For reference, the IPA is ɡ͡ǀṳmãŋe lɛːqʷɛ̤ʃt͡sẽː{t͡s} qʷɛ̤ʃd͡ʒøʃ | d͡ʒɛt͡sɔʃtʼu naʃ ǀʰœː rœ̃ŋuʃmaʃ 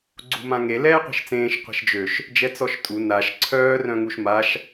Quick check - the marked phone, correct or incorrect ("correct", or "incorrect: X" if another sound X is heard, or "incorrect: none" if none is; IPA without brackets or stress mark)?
incorrect: ʃ